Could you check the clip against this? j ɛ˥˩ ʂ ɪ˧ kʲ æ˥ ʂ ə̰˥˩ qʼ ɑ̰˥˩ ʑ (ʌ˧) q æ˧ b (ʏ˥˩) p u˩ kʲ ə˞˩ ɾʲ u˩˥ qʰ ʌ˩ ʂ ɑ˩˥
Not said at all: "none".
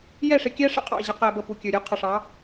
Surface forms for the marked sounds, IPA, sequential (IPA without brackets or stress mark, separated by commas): ʌ˧, ə˥˩